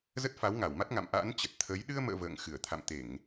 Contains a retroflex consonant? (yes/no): no